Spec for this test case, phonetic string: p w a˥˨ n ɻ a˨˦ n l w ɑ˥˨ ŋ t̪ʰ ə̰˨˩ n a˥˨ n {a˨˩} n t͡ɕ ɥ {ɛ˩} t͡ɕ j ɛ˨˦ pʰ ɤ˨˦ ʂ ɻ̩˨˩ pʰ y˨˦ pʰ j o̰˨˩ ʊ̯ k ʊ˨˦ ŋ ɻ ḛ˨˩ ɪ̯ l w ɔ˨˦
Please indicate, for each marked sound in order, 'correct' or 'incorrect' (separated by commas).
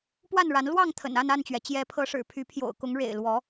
incorrect, correct